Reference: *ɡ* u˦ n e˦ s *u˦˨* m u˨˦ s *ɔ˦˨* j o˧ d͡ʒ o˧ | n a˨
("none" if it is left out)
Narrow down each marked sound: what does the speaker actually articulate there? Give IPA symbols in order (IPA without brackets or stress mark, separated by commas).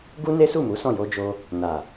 ɡ, u˦˨, ɔ̃˦˨